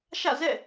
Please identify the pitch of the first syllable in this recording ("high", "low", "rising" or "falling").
falling